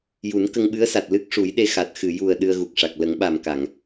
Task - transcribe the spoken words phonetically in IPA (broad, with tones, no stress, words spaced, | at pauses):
ju˨˩˦nkə˧ŋɓɨ˧˥ə̯sa˨˩t̚ lɨ˦˥k̚ʂu˨˩˦jɗe˧ xa˨˩t̚ xɨ˨˩˨ju˨˩ə̯ ɗɨ˧ə̯ɣu˨˩k̚ʂa˨˩k̚ lə˨˩˦ŋɓa˨˩mka˨˩˨ŋ